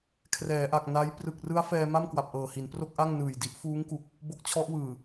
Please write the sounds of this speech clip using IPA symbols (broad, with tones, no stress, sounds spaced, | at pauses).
kʰ r ɛː˩˦ ʔ a˨˩ k̚ n a˦˥ j p r ɯ˨˩ k̚ r ɯ˦˥ a̯ f ɛː˧ m a˥˩ m k w a˨˩ p̚ ʔ ɤː˨˩ h i˩˦ n p r o˥˩ k̚ ʔ a˥˩ ŋ n ɯː˨˩ j d i˦˥ ʔ f uː˦˥ ŋ k u˨˩ k̚ | b o˦˥ k̚ t͡ɕʰ ɔ˦˥ ʔ w ɯː˨˩